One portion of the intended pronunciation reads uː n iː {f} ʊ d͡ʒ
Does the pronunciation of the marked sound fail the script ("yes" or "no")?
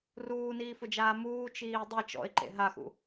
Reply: no